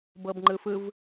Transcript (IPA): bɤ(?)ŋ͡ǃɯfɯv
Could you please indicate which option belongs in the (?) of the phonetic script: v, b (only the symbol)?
b